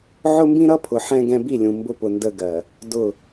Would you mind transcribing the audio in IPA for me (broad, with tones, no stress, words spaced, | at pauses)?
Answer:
ʕʊ˦mbĩ˦ɾʌ˦pʰʊ˨ ħɛ̃˦ɡɛ̃˦ bi˦˨lʲũ˨ mbʊ˦pʊ˨ ndə˦ɡɜ˨ | dʊ˦˨